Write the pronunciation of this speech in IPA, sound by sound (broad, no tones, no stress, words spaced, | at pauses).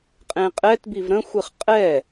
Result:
qʼẽqʼɛtbiv ɾə̃xʷɨχ qʼɛ